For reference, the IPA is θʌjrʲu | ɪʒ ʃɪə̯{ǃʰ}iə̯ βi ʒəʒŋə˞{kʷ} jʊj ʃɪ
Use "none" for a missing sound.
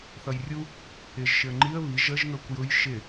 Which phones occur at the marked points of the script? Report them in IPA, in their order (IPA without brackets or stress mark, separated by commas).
ŋ͡ǃ, kʷ